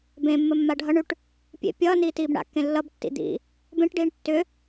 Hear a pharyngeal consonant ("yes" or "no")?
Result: no